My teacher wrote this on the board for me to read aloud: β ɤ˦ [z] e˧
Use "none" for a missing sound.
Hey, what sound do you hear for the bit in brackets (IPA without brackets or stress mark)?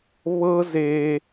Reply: z